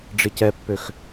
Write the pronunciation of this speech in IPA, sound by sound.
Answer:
ɖ͡ʐ ɪ c ɛ pː ø x

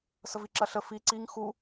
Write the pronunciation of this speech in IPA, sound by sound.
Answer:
s ə v i ǁ ɐ ɬ ə f i ǀ i ŋ x u

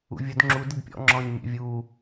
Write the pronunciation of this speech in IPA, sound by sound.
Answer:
ṵ vʲ ʊ d ŋ͡ǁ u d ɪ d pʲ ɔ̰ ŋ͡ǁ ɔ̃ː ɲ mʲ ɛ̰ vʲ uː

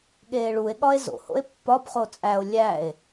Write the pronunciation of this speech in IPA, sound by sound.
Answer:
ɠ eː ɭ u e̯ ɠ ɒ e̯ z o̰ h o̰ e̯ pː ɒ b χ o t͡sʼ æ o̯ lʲ æ e̯

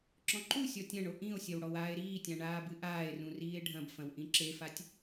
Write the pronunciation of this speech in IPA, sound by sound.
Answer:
ǁ ɔ̃ ǃ u sʲ ɔ tʲ ɐ̃ ɳ o ʔ ĩ o̯ sʲ ɐ w ɽ ɔ w aː e̯ ɾ iː tʲ ã ɳ aː b ɨ ʔ aː e̯ r ũ r iː e̯ ɖʱ ɐ̃ b f ɐ̃ w ʔ ĩ ǁ e f a tʲ

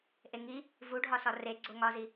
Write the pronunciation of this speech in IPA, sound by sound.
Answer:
ʔ e ŋ i | v u ɖʱ ɒ s ɒ r e ɡ͡ǀ o ŋ ɒ z i

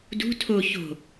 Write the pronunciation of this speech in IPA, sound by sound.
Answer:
d ṳ tʰ o ç o̤

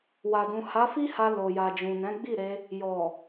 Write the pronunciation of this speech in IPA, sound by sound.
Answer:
w a˨ d ũ˨ h a˨˦ f i˦ h a˧ l o˨ j a˨ d͡ʒ ũ˨ n ɛ̃˨˦ ɡ͡b i˦˨ ɾ e˧ | j ɔ˨

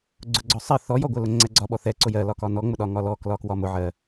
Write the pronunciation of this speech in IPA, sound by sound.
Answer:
ɡ͡ǀ ʊ ɡ͡ǀ ɔ sˤ ɜ θ ɔ j ɔ ɡʷ ɜ l ʊ ŋ͡ǀ ɛ ɡ͡ǀ ɒ ɓ ɔ θ ɛ ǀ ʊ j ɜ l ɒ k ɒ n ɔ ŋ͡m ʊ ɗ ɒ ŋ ɒ l ɔ k l ɒ k w ɒ m ʊ ʕ ɜ

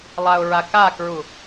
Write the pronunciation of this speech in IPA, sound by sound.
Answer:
lˠ a ʊ̯ ɹ a k a k ɹ u

